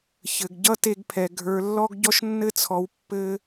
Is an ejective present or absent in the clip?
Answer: absent